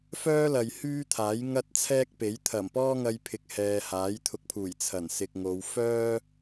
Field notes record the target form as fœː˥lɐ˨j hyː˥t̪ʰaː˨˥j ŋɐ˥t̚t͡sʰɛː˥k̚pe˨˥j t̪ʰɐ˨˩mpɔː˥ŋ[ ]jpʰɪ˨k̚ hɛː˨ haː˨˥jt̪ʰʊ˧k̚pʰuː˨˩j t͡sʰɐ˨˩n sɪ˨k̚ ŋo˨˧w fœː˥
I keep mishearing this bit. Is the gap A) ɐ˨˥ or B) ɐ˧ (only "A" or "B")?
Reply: B